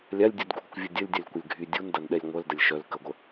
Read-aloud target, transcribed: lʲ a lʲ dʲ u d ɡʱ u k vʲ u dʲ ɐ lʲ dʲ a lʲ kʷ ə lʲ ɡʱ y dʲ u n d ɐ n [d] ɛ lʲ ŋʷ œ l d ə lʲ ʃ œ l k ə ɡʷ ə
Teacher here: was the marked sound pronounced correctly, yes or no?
no